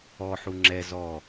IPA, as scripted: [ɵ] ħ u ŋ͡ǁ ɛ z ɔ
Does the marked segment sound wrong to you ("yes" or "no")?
yes